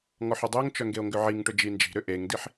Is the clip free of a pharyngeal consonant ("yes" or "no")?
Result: no